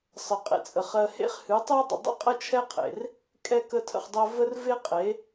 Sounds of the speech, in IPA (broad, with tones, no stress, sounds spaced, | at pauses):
sˤ ə˨ qʼ ḛ˨ t͡sʼ ə˨ χ ɜ˧ h ḛ˦ χ h ɨ˨˦ tˤ ɜ˦ dˤ ə̰˨ dˤ ə̰˦ qʼ ə˦ t͡ʃʰ ɛ˦ qʰ ḛ˨ r | kʼ ɛ˦ k ə˦ tʰ ə̰˧ χ dˤ ɜ˦ v ə˦ r v e˦ qʼ e˨˦